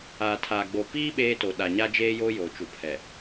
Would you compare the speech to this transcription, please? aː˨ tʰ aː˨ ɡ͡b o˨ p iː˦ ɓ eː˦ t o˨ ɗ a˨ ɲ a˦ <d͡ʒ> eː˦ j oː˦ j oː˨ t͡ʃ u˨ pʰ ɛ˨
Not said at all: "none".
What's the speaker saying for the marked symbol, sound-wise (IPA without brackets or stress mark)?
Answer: d͡ʒ